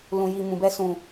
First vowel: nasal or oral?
nasal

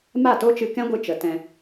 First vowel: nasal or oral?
oral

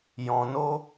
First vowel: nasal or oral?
nasal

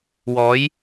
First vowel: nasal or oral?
oral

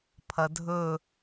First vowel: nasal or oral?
oral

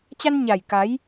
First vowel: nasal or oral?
oral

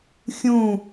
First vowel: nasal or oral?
nasal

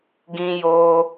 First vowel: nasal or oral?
nasal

